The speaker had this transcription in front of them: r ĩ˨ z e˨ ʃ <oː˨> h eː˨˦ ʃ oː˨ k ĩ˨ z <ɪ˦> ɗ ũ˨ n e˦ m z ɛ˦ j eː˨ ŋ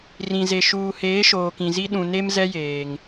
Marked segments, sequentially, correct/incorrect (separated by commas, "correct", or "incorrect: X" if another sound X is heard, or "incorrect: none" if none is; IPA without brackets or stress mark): incorrect: uː˨, incorrect: i˦